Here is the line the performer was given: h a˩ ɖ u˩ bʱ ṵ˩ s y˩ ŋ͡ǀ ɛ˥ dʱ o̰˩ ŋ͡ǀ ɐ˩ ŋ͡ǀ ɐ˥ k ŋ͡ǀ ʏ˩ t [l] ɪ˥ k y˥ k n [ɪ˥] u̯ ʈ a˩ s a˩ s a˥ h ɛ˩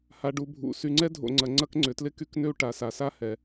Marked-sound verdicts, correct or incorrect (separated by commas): correct, incorrect